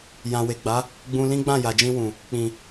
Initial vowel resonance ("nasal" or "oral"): nasal